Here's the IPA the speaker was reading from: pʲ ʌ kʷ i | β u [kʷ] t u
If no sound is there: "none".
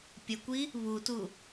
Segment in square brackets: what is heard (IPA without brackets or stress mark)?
none